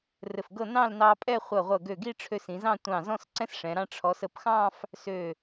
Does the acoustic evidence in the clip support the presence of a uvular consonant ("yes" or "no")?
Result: yes